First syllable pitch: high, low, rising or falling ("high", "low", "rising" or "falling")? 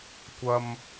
low